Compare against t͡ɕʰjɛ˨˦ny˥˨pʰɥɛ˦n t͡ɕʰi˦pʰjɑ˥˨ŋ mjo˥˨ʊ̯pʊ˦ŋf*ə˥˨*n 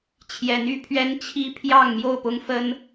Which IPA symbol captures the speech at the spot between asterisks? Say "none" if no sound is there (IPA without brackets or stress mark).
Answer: ə˦